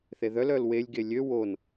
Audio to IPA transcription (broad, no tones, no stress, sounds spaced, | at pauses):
θ e ð œ l œ l w e lʲ ɡ e lʲ ø w o n